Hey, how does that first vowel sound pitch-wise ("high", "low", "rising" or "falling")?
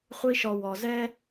high